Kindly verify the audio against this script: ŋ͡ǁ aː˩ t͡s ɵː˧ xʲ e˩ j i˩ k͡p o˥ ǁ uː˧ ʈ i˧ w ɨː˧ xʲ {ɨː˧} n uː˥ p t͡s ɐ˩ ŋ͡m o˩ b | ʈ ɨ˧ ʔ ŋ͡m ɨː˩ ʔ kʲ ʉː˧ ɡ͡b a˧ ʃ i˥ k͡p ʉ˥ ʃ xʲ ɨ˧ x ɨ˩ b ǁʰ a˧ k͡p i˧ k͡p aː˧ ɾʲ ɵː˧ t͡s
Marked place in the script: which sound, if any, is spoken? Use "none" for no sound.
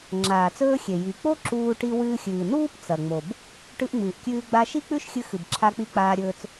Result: ɨː˩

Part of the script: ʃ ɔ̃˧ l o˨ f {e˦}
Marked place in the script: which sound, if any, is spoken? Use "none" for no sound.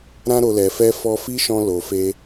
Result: e˧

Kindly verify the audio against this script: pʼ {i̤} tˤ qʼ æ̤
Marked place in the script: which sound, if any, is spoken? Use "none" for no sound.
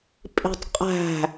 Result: i̤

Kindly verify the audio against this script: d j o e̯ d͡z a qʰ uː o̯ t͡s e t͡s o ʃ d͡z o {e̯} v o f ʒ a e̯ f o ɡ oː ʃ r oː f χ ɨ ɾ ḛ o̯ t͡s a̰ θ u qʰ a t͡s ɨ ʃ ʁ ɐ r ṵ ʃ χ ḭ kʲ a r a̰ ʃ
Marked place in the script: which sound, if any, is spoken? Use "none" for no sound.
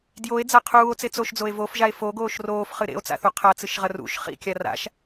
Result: e̯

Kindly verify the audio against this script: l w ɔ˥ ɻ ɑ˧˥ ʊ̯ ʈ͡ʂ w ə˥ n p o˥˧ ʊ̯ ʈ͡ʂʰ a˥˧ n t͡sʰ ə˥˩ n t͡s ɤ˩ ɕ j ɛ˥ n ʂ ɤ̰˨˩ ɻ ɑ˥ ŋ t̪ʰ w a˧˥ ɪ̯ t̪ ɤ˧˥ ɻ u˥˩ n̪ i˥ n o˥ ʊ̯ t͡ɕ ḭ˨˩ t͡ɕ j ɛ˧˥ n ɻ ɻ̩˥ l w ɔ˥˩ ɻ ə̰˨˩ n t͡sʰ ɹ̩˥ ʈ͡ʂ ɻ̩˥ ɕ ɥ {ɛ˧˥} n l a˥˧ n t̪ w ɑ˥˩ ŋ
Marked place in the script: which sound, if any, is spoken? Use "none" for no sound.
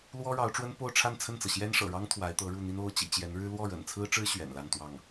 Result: ɛ̰˨˩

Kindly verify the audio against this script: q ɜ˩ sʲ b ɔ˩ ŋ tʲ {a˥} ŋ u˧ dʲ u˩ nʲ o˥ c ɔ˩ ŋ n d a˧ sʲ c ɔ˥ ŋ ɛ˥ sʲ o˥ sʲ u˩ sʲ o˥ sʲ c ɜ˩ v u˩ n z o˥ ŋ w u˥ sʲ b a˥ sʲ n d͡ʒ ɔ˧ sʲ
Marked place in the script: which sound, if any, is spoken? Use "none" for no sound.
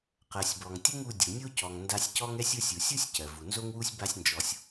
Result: ə˥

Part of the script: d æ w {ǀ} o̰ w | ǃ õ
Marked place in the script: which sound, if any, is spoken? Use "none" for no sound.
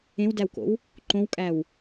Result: k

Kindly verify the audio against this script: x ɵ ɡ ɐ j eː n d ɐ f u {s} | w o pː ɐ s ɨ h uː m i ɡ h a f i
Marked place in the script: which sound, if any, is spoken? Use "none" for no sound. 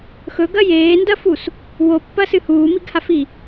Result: s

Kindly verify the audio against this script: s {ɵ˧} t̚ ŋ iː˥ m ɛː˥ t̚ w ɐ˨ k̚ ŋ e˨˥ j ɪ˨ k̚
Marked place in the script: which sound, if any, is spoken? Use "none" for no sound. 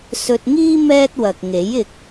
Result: ɵ˧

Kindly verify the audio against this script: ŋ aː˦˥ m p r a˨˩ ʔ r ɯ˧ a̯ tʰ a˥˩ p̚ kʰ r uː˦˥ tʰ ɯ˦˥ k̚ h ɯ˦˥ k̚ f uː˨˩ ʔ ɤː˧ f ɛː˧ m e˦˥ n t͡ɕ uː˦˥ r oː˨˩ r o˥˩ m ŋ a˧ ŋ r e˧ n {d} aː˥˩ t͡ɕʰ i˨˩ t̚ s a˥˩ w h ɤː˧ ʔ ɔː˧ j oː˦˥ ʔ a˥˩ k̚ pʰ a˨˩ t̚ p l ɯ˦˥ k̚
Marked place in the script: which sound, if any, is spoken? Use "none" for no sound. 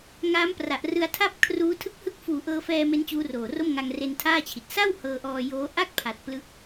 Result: tʰ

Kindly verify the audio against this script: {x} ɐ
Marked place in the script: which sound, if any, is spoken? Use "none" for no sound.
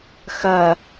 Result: x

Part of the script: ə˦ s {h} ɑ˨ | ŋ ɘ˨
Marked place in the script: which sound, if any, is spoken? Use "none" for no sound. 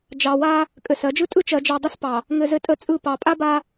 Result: p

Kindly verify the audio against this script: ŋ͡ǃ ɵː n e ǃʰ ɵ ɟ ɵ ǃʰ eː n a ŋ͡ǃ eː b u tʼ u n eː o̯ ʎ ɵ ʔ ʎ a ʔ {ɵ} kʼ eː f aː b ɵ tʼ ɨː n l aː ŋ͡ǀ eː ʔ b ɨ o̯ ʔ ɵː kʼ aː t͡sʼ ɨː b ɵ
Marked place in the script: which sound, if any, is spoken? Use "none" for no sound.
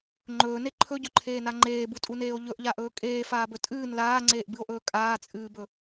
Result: ɵː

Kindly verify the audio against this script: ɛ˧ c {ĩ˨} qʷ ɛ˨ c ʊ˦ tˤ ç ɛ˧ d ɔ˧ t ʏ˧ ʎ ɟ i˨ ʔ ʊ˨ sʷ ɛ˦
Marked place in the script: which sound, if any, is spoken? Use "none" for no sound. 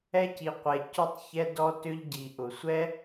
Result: i˨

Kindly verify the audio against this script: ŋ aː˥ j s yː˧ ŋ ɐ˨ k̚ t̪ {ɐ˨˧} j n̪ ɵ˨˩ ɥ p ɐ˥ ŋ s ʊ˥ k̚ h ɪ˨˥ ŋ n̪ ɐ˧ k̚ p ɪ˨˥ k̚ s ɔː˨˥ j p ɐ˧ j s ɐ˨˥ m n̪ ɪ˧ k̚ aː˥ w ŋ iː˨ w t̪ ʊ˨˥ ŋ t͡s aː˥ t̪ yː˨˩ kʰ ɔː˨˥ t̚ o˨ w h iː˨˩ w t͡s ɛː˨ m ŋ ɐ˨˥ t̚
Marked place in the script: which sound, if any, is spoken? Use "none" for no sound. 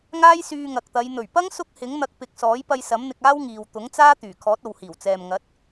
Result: ɐ˨˧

